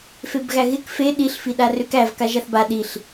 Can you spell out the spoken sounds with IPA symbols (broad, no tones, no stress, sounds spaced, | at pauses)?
f e b ɣ æ ɣ ɪ k f e ɗ i ɬ f i ɗ a r ʏ k æ v k a ʒ a θ b a ɗ i ɬ